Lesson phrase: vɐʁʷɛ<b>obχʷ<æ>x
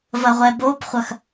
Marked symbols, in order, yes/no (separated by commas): yes, no